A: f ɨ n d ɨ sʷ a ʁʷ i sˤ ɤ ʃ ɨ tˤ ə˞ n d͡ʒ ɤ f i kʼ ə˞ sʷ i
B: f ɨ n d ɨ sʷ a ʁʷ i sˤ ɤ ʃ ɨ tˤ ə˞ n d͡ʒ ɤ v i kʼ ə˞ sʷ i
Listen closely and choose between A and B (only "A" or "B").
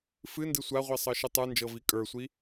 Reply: B